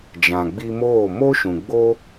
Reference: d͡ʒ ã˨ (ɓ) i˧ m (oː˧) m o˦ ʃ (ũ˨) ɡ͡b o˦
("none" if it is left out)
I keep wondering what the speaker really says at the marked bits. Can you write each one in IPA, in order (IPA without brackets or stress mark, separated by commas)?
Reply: ɡ͡b, oː˦˨, ũ˨